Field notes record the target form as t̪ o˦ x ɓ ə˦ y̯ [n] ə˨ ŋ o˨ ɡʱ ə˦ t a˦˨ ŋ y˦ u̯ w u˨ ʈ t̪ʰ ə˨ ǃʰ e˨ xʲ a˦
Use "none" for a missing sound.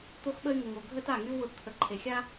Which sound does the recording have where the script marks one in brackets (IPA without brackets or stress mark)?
ŋ